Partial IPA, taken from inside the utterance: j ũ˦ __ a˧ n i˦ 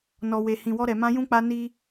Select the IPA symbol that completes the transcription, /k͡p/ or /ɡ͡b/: k͡p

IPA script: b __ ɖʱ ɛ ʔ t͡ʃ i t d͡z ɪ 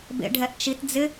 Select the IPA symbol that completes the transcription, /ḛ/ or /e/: ḛ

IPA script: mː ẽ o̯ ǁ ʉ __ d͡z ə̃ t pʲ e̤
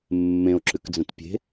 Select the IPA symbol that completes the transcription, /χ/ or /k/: k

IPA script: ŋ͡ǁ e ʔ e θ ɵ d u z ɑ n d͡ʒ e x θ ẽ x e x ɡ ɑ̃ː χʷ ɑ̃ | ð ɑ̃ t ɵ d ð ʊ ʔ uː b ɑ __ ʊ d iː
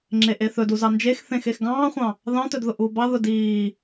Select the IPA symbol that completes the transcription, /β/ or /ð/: ð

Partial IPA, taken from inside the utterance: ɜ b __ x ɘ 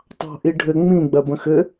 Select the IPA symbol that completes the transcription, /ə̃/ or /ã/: ə̃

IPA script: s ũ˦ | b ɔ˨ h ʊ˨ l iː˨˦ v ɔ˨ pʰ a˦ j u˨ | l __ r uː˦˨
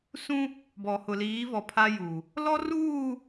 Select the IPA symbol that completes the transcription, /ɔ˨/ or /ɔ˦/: ɔ˦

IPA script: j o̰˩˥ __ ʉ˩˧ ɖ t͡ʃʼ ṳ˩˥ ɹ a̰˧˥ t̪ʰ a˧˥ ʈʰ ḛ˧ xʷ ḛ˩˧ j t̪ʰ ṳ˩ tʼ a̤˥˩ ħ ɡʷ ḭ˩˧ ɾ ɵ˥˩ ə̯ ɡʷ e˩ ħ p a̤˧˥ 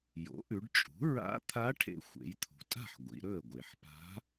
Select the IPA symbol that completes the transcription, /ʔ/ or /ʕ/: ʔ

